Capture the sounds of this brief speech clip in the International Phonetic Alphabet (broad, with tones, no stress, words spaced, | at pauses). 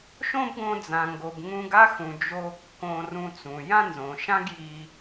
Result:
ʃõ˥bɡõ˧d͡zã˩ŋɡo˩b ŋũ˧ɡa˥xũ˩ d͡ʒo˧kːõ˧ rũ˧t͡sũ˩ jã˥nzõ˩ʃã˥ɡ ji˧